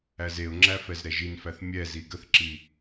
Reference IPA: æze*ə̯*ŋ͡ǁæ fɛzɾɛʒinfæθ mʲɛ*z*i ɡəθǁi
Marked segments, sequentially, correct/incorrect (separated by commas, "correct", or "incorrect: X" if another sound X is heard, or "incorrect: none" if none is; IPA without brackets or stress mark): incorrect: ʊ̯, correct